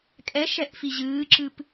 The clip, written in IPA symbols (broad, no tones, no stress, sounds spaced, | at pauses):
kʼ ɛ ʃ ɛ ʔ f i ʑ ɨː ǁ ɨ p